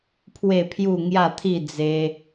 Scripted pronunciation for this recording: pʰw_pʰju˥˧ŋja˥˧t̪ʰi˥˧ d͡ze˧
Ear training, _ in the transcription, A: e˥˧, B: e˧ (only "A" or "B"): A